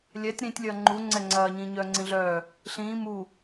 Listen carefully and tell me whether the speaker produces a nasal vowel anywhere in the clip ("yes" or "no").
yes